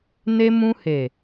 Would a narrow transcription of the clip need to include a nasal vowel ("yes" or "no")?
yes